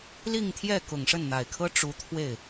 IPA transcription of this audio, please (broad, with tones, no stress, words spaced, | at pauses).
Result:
li˥˧ŋt̪ʰjɛ˥˩ kʊ˨˩ŋʂə˥˩nn̪a˨˩ɪ̯kʰɤ˥ ʈ͡ʂu˧˥t̪ʰwe˥˩ɪ̯